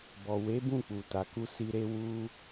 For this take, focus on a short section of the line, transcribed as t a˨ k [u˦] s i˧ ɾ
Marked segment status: incorrect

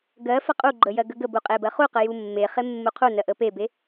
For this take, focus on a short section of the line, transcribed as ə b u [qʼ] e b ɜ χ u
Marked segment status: correct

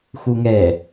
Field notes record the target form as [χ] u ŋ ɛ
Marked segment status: incorrect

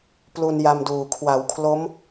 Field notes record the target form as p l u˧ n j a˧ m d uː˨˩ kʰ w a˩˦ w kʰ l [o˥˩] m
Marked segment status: incorrect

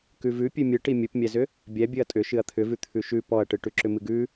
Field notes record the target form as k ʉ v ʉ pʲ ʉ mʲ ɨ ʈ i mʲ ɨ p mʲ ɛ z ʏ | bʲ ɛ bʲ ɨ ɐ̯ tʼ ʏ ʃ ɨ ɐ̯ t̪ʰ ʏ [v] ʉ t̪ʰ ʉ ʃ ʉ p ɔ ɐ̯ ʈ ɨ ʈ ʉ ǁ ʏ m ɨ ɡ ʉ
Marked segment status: correct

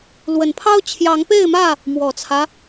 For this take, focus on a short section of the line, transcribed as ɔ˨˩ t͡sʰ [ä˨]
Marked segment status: incorrect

